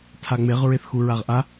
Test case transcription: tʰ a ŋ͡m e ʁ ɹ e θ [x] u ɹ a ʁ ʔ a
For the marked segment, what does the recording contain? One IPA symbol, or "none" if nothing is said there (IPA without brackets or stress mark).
x